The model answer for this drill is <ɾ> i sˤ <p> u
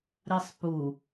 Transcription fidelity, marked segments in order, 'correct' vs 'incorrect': correct, correct

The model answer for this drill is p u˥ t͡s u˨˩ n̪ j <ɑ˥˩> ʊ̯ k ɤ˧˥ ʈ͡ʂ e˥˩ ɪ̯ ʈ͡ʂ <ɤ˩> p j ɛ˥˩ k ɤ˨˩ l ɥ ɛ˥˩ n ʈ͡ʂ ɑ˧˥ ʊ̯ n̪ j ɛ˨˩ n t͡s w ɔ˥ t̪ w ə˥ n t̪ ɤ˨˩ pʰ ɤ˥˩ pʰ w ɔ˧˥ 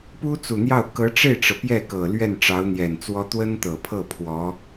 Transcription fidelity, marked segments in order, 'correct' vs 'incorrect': correct, correct

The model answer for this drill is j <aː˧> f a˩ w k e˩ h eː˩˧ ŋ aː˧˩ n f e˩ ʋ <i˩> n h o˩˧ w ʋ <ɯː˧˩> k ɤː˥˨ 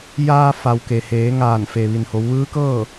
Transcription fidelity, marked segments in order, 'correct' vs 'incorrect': correct, correct, incorrect: ɯː˧˥

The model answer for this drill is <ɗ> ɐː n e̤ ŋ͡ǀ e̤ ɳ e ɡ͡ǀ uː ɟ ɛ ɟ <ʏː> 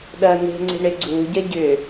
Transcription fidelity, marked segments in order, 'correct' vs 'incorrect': correct, correct

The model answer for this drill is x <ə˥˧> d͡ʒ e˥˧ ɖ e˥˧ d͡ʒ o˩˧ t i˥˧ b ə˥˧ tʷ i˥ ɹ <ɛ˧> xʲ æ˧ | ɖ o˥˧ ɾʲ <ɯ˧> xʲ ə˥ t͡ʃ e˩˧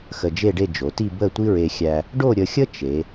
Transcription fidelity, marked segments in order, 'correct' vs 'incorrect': incorrect: ə˧, incorrect: e˧, incorrect: ə˧

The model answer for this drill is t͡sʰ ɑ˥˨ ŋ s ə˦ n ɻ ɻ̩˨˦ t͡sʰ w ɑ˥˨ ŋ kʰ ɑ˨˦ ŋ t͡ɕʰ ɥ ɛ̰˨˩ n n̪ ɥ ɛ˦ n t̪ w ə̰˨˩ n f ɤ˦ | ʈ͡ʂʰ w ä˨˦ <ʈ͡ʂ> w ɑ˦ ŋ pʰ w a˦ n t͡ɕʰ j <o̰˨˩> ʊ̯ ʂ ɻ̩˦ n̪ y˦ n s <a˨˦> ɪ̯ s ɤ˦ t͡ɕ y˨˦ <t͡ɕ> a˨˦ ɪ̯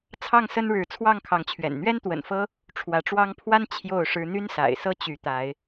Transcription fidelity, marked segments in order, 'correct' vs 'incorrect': correct, incorrect: o˥˨, incorrect: a̰˨˩, incorrect: t̪

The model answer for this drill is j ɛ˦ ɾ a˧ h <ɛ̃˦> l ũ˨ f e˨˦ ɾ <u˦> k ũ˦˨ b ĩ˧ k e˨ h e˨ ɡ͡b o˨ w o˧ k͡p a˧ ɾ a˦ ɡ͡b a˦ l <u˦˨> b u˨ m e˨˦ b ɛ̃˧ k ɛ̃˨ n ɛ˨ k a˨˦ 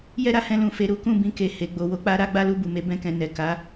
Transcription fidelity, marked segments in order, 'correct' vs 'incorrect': incorrect: ɛ̃˧, correct, correct

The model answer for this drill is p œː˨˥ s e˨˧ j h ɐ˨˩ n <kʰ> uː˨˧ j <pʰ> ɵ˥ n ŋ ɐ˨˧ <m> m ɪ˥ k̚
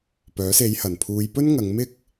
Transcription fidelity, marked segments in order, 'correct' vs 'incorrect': incorrect: pʰ, incorrect: p, incorrect: ŋ

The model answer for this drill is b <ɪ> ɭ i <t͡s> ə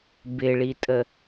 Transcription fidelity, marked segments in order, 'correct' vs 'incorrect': correct, incorrect: tʼ

